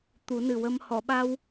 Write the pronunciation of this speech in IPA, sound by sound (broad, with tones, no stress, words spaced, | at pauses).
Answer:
t̪u˨˩˦nɨ˨˩wə˧m hɔ˨˩˨ɓa˧w